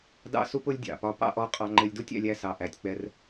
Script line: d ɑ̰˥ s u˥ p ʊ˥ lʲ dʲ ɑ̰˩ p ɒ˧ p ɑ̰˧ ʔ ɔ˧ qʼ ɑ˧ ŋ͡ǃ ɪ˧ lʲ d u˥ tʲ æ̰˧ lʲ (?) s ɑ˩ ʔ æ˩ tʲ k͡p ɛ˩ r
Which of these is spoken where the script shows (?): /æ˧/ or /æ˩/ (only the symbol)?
æ˧